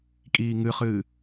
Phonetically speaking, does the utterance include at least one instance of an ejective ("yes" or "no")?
yes